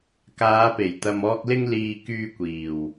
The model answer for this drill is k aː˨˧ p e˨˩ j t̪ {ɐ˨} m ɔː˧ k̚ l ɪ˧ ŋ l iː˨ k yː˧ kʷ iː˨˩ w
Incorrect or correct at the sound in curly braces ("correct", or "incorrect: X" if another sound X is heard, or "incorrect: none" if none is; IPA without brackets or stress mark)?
correct